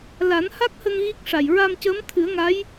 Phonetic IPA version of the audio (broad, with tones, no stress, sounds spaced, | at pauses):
l a˨˩˦ n h a˦˥ k̚ h ə˧ ŋ ɣ i˦˥ k̚ ʂ a˨˩ j ɹ a˧ m c əː˧˥ m t̪ʰ ɨ˨˩˦ ə̯ ŋ a˧˥ j